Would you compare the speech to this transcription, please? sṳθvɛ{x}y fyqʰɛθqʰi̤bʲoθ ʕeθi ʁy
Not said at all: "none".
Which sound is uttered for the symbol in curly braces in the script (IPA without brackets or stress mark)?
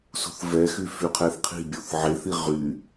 x